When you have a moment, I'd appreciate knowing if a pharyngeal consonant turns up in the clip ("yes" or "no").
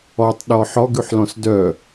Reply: yes